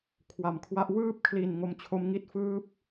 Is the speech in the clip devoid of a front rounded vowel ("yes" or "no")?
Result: yes